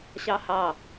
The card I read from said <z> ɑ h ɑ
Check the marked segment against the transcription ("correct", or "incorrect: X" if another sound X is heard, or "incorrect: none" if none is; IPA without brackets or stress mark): incorrect: ɕ